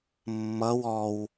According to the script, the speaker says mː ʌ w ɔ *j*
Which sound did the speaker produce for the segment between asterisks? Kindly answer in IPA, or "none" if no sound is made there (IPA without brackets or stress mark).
w